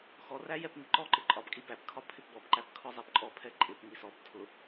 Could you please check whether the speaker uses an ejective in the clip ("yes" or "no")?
yes